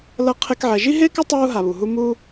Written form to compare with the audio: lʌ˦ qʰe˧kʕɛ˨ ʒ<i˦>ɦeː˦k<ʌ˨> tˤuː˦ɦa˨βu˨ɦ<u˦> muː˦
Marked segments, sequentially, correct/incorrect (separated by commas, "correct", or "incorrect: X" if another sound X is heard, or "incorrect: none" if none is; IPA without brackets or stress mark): correct, incorrect: ʌ˦, correct